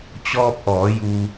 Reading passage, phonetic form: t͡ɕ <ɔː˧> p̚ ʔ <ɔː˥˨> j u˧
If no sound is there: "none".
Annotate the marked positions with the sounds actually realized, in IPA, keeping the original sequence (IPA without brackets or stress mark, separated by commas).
ɔː˧, ɔː˩˧